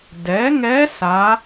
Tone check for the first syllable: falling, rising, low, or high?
rising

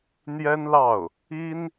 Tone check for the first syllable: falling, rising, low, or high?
high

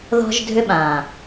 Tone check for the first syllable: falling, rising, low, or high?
high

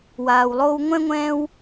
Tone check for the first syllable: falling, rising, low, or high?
low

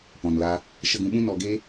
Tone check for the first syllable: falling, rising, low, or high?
low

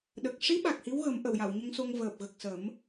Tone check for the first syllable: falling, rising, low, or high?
low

